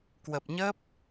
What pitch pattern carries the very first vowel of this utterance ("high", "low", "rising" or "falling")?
low